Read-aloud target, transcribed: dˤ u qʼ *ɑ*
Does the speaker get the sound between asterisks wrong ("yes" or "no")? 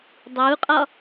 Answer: yes